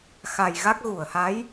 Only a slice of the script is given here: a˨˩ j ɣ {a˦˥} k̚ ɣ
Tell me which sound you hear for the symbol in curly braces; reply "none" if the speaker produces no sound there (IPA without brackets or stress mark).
a˦˥